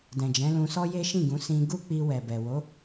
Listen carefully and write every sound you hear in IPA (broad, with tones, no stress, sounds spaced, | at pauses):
d ɛ̃˨ d͡ʒ ɛ̃˨˦ l ũ˧ s ɔ˦ j e˦ ʃ ĩ˦˨ ɡ ũ˨˦ s ĩ˧ ɡ u˦ k͡p i˧ w ɛ˨ b ɛ˨ w o˨˦